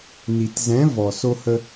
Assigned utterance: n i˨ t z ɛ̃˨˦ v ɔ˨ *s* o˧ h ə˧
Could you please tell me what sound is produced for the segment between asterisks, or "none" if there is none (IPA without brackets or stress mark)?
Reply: s